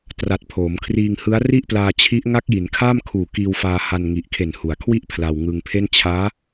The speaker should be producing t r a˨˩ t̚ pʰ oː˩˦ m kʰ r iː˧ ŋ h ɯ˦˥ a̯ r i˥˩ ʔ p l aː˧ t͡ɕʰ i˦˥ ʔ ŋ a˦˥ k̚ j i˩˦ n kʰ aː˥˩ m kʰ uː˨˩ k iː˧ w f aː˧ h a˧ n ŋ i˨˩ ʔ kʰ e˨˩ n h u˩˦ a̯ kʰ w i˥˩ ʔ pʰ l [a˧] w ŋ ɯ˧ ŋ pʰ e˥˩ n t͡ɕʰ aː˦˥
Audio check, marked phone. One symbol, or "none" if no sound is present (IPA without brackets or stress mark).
a˧